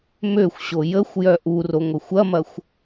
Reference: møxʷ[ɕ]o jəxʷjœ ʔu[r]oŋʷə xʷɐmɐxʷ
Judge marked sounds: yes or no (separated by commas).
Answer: yes, yes